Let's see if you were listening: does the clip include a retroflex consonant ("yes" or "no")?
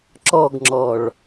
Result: yes